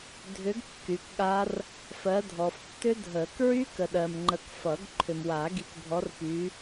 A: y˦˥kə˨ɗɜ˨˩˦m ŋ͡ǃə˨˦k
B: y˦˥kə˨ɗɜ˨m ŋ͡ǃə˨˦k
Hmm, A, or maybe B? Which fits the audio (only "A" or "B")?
B